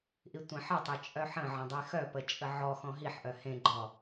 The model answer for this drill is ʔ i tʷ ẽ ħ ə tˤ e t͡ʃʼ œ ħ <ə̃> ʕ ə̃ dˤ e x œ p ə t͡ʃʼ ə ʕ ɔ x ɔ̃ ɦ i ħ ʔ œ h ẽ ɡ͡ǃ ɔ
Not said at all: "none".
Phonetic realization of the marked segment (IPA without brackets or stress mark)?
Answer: ə̃